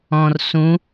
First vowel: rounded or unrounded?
rounded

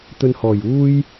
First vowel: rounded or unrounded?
rounded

